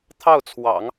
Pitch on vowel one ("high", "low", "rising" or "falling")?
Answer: falling